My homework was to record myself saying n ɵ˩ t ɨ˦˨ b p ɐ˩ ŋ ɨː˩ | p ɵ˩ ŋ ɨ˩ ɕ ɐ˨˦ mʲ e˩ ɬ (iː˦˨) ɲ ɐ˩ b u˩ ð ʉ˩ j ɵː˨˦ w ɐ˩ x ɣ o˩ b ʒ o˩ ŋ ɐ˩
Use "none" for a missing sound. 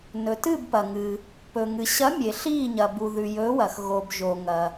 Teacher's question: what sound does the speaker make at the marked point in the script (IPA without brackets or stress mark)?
iː˦˨